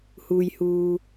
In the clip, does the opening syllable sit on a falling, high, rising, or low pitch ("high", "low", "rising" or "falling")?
low